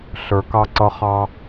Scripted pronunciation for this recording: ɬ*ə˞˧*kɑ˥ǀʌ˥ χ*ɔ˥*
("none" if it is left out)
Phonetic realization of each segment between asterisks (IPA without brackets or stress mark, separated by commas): ə˞˧, ɑ˥